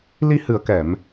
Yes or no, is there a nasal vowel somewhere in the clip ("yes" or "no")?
no